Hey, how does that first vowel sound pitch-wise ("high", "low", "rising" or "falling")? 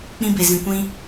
high